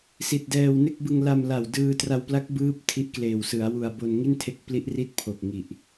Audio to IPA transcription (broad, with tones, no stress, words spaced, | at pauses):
si˨˩t̚dɛː˧wne˥˩k̚ bɯ˧ŋla˧mla˨˩w dɯː˧tra˧wpla˦˥k̚ bɯː˦˥p̚ tʰi˦˥ʔkleː˨˩w sɯ˩˦a̯wu˧a̯ bo˧nŋi˥˩ntʰe˦˥k̚ pli˦˥ʔri˥˩t̚ pʰo˨˩k̚ŋi˨˩ʔ